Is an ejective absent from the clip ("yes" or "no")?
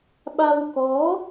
yes